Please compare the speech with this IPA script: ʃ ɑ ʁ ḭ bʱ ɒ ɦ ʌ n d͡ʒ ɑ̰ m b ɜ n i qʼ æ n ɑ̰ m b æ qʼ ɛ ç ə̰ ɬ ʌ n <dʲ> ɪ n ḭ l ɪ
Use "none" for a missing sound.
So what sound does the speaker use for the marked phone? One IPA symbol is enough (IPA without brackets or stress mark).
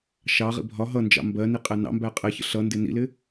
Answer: d